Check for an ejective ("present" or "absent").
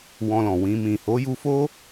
absent